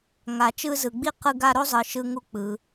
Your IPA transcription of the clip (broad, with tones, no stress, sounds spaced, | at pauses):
ŋ a˨ t͡ʃ ɯ˦ z ɯ˨ ɡ͡b i˥ q ɯ˦ ɡ a˦ ɾ o˥ zˤ ɯ˨ ʃ ɯ˦ ŋ u˦ k͡p ɯ˨